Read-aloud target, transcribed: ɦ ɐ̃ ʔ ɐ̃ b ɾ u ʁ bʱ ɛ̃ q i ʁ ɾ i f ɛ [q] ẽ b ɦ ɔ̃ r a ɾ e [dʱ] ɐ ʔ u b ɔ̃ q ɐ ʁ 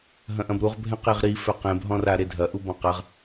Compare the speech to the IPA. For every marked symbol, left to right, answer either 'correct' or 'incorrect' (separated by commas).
correct, correct